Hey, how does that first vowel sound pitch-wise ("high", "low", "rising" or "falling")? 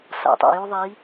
low